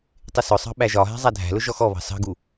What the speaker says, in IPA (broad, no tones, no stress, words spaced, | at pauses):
tˤɪsʊsˤɑ̤ ɓæʒɒɦæ̤ zˤædʱæ̤lʊ ʒɔxɔβɑ̤ sɑ̤ɡu